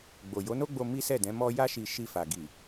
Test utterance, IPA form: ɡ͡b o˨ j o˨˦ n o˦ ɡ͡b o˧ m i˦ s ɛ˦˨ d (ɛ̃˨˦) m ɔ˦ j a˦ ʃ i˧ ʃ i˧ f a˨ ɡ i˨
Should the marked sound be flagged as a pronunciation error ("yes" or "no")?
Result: no